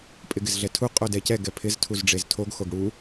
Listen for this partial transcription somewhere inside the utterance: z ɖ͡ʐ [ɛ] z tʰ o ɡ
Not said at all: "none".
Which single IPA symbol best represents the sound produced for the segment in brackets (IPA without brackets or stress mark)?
e